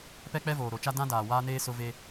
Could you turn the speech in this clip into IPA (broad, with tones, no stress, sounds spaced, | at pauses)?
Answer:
p ɛ˦ k͡p ɛ˦ v oː˨ ɾ o˨ t͡ʃ a˦ d ã˦ d aː˨ w aː˦ n eː˦ s ʊ˦ v e˦